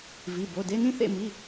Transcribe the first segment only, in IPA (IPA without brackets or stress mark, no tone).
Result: v